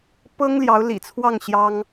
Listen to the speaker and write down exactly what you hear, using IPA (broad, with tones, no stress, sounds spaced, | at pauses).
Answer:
p ɤ˥ ŋ l j ɑ˧˥ ʊ̯ l ḭ˨˩ t͡sʰ w ɑ˥˩ ŋ ɕ j ɑ˥ ŋ